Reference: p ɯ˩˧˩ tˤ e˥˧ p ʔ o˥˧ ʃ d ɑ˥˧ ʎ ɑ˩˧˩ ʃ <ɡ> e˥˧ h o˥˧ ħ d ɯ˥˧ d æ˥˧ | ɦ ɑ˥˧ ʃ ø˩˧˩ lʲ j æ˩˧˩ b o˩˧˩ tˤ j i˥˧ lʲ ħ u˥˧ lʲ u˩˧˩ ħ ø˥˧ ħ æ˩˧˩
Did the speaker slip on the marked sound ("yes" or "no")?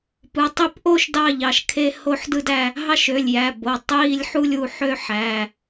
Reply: yes